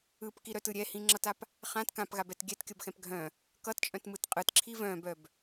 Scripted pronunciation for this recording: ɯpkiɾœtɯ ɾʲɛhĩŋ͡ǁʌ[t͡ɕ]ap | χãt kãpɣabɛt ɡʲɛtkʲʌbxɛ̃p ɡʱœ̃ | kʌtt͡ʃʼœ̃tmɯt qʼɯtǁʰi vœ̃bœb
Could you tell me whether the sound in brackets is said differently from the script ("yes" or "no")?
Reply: yes